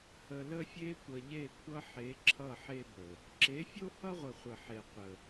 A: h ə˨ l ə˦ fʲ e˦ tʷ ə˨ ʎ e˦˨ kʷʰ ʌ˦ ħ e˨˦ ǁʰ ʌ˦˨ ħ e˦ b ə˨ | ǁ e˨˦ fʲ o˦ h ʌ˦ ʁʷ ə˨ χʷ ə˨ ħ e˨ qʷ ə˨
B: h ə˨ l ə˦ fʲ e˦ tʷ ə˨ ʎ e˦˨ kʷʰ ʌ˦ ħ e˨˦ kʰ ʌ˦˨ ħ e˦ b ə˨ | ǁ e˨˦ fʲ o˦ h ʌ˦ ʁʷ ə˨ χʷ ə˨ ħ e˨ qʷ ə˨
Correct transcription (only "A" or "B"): A